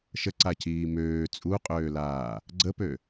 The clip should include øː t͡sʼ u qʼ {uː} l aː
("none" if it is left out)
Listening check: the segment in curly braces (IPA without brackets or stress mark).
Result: øː